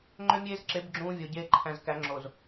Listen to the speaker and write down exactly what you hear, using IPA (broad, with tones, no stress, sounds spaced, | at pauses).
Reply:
ŋ͡ǃ ø˦ mʲ eː˦ z ǁ e˨˦ b ɡ͡ǁ ũː˦ vʲ o˨ ɟ eː˨ ǃʰ æ̃˨ z k æ˨˦ ŋ͡ǁ o˨ z